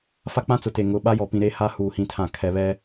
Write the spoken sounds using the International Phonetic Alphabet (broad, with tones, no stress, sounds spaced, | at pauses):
f a˦ k͡p ã˦ t͡s ʊ˨ t e˨ ŋ ʊ˨˦ ɓ a˦ j ɔ˨ p ĩ˨ ɾ e˦ h a˦ h uː˨ h ĩ˦ tʰ ã˦˨ kʰ ɛ˨ β ɛ˦